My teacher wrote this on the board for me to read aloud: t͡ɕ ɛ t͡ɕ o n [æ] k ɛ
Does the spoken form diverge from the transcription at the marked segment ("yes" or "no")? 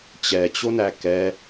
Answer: no